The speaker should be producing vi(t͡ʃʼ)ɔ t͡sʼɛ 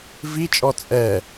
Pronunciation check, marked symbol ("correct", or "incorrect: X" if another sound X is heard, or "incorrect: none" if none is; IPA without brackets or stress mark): correct